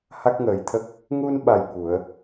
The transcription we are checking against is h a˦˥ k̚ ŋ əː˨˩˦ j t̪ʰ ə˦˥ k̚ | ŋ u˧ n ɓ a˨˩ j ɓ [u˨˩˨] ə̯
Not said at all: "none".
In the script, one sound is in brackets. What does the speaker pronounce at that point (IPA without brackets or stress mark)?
u˨˩˨